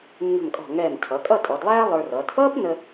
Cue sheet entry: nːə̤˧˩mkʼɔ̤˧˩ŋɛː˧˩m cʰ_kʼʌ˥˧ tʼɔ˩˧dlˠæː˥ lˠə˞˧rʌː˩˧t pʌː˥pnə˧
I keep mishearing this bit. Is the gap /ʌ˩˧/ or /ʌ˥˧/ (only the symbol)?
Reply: ʌ˩˧